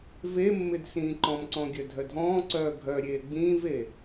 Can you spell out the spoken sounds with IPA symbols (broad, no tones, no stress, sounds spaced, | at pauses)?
v e mː ɪ d s ĩː ǃ ɔ̃ m ǀ ɔ̃ ɡʲ œ dʱ œ dʱ ɔ̃ː ǀ œː ɡʱ œ ɾʲ eː ɡ͡b ĩː v e